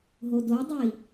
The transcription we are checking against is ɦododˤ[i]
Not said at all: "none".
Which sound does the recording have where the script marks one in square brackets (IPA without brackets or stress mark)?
i